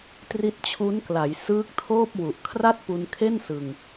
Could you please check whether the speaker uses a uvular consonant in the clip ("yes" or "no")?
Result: no